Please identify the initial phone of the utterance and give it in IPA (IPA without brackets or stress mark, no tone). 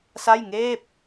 s